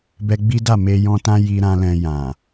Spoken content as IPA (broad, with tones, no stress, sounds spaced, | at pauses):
b ɛ˧ ɡ͡b i˦ d a˦˨ m e˧ j ɔ̃˧ t ã˦ j i˦ ɾ ã˦ l ɛ̃˧ j ã˨